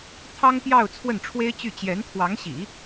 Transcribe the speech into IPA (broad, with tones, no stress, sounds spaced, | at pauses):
t̪ʰ ɑ˥ ŋ p j ɑ˥˧ ʊ̯ t͡sʰ w ə˥˩ n ʈ͡ʂʰ w e˥ ɪ̯ t͡ɕ y˥˩ t͡ɕ j ɛ˧˥ n t̪ʰ w ɑ˧˥ ŋ ɕ ḭ˨˩˦